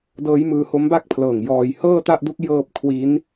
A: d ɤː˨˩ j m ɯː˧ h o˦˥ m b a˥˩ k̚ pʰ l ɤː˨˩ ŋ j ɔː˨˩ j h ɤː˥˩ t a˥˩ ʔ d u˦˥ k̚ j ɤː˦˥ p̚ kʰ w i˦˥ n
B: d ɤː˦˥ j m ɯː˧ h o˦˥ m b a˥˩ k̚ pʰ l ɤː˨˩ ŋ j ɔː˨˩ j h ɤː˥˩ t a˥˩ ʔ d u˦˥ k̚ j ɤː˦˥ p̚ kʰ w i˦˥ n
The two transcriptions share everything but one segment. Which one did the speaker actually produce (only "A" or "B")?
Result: B